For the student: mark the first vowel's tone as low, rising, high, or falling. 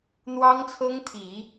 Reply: high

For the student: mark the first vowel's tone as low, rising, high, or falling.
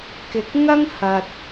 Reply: low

